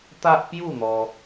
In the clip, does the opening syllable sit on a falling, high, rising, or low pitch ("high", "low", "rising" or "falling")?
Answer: high